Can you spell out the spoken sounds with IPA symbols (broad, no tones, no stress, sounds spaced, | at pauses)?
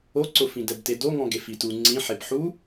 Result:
o ǀ ʊ f ĩ d ɛ b t e d o ŋ ɔ̃ ɡ e f i t u ŋ͡ǀ ĩ ħ e b ħ u